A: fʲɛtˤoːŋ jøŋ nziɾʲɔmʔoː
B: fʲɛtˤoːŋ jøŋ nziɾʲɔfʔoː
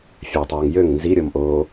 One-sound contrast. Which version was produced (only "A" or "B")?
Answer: A